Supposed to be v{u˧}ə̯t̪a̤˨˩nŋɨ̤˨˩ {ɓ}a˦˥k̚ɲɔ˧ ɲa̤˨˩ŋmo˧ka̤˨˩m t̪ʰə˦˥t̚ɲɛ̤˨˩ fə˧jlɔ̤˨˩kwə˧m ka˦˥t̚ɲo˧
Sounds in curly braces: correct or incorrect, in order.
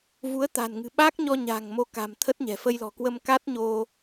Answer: incorrect, correct

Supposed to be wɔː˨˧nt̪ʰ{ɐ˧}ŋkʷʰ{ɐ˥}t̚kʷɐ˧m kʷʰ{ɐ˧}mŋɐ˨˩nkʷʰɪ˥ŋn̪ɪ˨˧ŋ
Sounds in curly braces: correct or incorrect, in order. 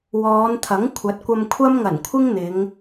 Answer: incorrect, incorrect, incorrect

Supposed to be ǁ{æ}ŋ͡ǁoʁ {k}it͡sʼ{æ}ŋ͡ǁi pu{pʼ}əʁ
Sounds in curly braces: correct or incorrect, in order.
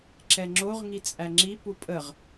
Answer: incorrect, incorrect, correct, correct

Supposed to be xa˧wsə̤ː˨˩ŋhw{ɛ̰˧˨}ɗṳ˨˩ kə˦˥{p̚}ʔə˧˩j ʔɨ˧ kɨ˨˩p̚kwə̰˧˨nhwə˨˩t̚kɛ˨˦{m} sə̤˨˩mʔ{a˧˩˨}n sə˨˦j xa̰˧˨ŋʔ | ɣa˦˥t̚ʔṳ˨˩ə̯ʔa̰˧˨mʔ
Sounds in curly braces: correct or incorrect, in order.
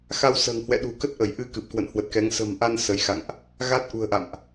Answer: correct, incorrect, incorrect, incorrect

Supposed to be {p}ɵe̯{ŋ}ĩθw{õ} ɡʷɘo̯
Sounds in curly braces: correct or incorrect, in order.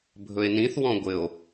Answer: incorrect, incorrect, incorrect

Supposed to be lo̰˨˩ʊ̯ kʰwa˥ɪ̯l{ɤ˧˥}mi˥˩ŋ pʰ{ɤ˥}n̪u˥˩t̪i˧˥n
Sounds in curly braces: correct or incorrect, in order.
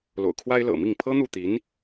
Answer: incorrect, correct

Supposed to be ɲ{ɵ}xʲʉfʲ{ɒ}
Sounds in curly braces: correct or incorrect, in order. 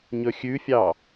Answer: correct, incorrect

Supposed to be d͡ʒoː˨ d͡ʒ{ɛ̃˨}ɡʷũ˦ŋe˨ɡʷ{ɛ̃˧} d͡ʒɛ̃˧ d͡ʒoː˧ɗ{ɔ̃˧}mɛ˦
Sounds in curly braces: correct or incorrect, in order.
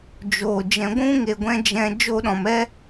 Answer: correct, correct, incorrect

